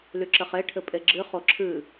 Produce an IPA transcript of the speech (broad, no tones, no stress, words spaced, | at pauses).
lyǁɘχe ʈʰɘpʼeɡ͡ǁɨ χoǁʰɨ